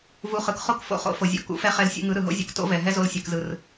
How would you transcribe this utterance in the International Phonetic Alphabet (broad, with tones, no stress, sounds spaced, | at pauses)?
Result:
v u˧ χ ɯ˨ k χ o˦ k f o̰˧ χ o̰˧ f o˨ zʲ o̰˧ k ṵ˨˦ f ɛ˧ χ ɛ˧ l sʲ ṵ˧ ŋ ɯ˨˦ ɾ ɯ˨ ɦ o̰˦ zʲ ṵ˧ k t o̰˦ v ɛ˨ ɦ ɛ˦ z o˧ l sʲ ɛ˨ k z ɯ˨ r